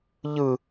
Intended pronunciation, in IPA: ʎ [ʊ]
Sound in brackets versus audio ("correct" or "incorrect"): incorrect